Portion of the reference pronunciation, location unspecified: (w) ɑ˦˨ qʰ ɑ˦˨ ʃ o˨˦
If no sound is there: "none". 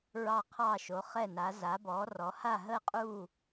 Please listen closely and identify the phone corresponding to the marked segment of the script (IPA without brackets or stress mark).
ɹ